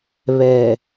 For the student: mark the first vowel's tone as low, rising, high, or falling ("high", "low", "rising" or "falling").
low